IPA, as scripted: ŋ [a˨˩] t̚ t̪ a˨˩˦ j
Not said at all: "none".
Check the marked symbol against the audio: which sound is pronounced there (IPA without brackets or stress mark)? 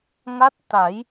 a˦˥